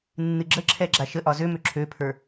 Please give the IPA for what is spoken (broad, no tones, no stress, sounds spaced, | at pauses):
nː ɨ ɡ͡ǁ ə ǁʰ ɛ ɡ͡ǁ a ʃ ə ʔ ɒ z ø m ø ǁʰ ø pʰ ə˞